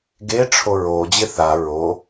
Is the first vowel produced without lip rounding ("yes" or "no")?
yes